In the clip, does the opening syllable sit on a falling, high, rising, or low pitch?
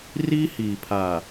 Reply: high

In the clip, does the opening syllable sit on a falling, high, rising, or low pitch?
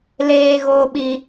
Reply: low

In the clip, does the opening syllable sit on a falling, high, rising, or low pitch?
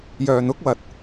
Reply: low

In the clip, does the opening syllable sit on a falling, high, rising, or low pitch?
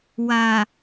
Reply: low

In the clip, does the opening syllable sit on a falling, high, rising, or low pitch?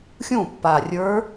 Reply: falling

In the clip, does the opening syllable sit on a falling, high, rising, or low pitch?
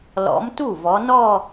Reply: rising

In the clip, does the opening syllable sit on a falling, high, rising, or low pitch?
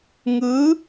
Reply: rising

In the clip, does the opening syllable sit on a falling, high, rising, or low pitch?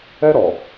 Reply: high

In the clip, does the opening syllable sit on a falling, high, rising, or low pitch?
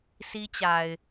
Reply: high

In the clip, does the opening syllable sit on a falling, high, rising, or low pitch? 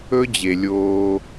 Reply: high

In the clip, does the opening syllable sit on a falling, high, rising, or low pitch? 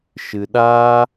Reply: low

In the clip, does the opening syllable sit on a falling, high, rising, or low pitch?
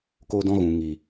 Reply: high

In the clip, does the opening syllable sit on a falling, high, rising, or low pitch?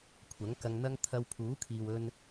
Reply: rising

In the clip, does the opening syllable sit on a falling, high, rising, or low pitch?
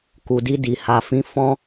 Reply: low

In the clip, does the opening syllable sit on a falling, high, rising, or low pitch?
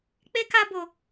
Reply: high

